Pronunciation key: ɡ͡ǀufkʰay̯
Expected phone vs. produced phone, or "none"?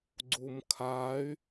f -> m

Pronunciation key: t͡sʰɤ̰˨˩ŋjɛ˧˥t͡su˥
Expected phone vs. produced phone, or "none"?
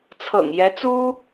none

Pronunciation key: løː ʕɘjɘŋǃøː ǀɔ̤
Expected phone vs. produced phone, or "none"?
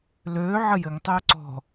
ǃ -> tˤ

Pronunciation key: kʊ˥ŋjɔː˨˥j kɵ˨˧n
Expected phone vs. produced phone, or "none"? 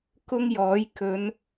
none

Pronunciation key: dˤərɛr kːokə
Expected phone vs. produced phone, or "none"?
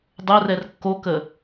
none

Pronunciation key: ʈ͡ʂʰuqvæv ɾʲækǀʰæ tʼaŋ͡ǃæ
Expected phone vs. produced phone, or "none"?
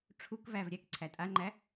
q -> k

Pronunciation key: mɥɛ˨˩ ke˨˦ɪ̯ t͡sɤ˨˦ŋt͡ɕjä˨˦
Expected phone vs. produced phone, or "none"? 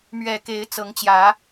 none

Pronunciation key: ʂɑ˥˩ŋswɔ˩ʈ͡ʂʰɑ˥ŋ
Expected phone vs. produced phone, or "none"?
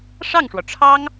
s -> ʂ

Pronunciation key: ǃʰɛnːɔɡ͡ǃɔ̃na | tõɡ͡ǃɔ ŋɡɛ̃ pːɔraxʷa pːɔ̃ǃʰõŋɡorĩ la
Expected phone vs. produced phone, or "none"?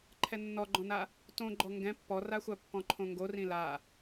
none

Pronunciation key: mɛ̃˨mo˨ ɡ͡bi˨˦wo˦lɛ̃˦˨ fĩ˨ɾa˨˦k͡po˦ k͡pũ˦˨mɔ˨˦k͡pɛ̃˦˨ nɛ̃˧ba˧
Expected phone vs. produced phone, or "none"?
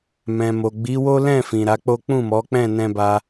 none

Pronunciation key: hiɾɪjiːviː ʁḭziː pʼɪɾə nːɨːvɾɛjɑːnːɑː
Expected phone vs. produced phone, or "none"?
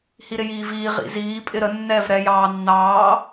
ɨː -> ɛː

